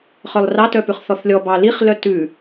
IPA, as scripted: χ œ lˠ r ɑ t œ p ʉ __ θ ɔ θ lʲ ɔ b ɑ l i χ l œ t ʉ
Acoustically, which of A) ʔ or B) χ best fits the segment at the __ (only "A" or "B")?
B